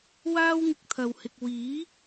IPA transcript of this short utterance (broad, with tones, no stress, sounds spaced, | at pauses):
w aː˥ w ŋ ɪ˨˥ k̚ t̪ʰ ɐ˨ w h ɪ˨ k̚ w iː˨˥